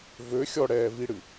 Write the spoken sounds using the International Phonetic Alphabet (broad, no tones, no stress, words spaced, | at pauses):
vø xʲɔɽɛː viɽɨ